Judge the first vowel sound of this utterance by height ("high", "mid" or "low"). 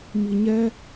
high